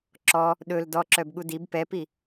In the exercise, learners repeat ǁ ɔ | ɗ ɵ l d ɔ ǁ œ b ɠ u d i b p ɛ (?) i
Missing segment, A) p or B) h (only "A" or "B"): A